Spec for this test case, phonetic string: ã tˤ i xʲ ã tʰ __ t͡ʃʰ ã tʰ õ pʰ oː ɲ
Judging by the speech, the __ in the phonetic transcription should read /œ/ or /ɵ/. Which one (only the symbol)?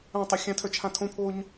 œ